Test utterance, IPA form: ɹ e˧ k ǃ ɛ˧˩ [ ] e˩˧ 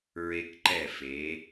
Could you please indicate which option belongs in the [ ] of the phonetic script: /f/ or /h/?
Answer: f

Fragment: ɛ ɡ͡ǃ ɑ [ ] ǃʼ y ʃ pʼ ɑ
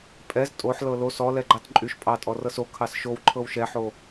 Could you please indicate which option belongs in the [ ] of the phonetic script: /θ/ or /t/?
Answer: t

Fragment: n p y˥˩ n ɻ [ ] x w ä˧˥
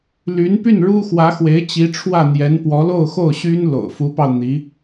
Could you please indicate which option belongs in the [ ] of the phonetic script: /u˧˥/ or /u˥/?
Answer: u˥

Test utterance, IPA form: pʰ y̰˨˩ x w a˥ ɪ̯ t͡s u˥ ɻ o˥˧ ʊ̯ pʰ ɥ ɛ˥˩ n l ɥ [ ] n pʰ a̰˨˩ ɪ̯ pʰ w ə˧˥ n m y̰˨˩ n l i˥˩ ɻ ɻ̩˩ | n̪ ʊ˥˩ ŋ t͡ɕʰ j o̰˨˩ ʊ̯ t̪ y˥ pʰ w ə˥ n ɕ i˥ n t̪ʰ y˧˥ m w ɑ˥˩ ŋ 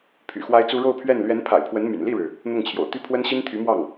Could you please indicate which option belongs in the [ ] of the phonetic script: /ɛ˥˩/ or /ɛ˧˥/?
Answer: ɛ˧˥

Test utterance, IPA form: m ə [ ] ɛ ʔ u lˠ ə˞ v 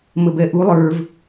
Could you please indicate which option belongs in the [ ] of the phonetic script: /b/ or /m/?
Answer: b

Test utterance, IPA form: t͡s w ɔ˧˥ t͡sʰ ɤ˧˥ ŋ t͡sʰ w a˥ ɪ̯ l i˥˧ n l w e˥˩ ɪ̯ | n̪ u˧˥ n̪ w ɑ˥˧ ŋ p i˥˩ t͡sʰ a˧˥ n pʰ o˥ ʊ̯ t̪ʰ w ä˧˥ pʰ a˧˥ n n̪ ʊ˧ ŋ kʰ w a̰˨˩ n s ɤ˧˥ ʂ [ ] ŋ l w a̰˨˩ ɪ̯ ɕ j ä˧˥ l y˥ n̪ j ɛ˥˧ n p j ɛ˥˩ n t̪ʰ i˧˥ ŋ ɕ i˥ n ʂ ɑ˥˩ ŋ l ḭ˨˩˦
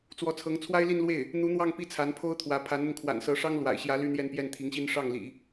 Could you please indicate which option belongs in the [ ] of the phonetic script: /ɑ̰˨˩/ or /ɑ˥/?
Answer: ɑ˥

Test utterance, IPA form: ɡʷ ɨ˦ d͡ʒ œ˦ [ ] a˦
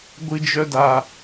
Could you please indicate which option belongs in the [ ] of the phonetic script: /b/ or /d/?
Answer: d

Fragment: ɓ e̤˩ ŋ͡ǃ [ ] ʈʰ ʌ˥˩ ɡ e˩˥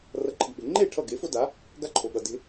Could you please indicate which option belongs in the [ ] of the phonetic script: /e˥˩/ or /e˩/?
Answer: e˥˩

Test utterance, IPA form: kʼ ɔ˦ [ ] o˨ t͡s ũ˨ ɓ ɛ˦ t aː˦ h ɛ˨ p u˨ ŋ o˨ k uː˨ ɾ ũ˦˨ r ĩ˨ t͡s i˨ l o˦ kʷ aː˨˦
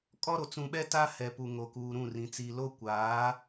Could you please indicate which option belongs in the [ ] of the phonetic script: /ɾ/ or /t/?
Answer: ɾ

